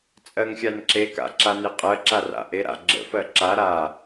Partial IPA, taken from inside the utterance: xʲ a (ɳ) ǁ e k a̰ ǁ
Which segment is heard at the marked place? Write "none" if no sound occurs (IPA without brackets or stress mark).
n